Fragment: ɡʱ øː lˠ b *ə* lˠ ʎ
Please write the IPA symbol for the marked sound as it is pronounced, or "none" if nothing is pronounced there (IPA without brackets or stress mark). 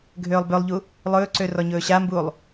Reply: ø